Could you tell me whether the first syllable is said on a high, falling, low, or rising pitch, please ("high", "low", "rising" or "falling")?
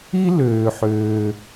high